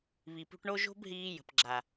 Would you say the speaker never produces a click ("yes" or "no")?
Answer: no